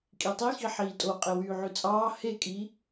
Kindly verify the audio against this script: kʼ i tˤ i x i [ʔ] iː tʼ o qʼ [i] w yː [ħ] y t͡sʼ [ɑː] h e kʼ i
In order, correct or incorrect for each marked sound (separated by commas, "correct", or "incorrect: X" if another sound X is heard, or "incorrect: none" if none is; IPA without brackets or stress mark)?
incorrect: ħ, incorrect: e, incorrect: ʕ, correct